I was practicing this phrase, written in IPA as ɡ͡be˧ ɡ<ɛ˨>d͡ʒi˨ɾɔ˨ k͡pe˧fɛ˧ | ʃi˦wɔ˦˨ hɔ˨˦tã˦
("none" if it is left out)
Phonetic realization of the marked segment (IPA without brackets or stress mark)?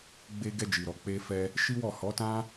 ɛ˧